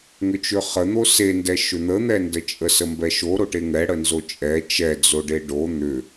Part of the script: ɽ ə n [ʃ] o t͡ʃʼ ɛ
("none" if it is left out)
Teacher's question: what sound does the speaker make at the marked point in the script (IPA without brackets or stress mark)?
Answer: z